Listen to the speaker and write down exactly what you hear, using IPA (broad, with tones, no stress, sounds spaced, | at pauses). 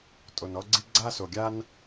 tʼ o˧ n ɔ˥ ɡ͡ǀ i˥ ɡ͡ǀ a˥ s o˧ ɡʲ a˥ n